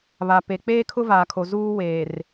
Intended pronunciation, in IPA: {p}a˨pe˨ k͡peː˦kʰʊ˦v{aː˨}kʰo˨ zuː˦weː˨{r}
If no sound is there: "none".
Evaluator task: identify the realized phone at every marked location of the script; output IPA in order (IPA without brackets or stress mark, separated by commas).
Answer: β, aː˨, r